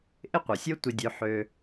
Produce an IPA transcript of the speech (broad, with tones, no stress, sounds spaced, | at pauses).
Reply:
ʔ ɪ˥ qʷ œ˩ sʲ o˥ tʷ ɪ˧ dʲ ø˧ ħ ø˧